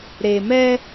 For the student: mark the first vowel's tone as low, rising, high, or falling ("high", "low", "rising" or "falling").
low